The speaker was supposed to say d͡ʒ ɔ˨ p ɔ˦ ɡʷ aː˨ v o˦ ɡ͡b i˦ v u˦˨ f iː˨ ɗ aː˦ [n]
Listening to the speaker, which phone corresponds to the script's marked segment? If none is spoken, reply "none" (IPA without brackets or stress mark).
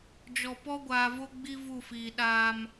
m